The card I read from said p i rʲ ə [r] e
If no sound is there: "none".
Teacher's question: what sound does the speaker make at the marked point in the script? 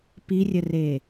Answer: r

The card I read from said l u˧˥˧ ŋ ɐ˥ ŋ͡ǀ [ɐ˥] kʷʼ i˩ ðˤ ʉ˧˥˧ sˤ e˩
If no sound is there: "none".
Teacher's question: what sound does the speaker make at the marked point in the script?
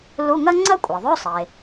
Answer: ɐ˥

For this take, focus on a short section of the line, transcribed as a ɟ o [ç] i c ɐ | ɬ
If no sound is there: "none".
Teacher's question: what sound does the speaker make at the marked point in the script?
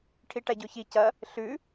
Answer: ç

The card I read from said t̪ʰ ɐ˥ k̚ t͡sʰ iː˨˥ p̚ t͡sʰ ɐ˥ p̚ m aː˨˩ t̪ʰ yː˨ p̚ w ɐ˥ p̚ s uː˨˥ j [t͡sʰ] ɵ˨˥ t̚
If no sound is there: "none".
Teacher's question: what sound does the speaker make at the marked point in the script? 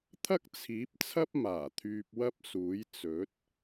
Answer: t͡s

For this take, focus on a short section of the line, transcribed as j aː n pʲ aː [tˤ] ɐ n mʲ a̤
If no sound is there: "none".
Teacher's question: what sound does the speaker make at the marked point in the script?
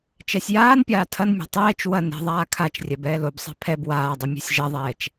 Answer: tʰ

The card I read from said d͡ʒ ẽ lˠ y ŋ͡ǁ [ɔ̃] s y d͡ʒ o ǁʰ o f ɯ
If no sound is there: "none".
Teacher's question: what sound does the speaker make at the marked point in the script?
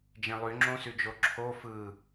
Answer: õ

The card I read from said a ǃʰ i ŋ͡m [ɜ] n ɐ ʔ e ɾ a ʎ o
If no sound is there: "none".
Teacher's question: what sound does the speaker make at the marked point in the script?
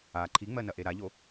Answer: ɜ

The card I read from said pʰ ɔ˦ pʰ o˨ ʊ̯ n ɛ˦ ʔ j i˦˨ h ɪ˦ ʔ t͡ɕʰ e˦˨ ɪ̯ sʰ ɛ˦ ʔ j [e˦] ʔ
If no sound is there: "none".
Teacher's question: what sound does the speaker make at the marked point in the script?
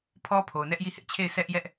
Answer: ɛ˦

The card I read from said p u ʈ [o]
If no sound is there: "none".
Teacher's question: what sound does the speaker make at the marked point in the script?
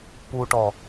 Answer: ɔ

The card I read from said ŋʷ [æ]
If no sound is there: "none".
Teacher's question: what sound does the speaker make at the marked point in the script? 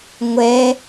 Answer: ɛ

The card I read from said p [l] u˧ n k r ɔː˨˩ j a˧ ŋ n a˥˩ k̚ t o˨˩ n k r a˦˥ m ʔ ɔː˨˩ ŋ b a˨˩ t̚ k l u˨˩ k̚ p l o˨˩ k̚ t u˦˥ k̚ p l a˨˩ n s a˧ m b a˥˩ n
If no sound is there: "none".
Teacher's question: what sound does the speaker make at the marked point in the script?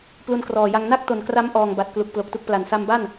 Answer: l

